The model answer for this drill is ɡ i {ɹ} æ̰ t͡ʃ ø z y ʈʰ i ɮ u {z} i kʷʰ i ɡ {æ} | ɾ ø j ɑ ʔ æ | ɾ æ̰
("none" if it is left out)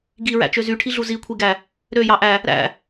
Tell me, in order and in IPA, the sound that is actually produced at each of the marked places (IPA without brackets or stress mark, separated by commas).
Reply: ɹ, z, æ